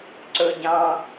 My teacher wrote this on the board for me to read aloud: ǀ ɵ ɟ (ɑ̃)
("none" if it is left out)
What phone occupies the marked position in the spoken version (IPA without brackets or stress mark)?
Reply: ɑ̃